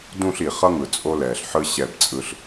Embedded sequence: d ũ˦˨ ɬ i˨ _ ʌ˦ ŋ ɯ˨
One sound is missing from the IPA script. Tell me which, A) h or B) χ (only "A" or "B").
B